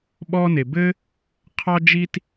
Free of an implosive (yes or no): no